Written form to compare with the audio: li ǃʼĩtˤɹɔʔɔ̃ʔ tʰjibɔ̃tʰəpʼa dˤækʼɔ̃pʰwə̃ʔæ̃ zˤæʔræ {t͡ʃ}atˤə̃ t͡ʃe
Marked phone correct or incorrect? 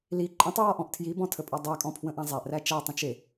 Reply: correct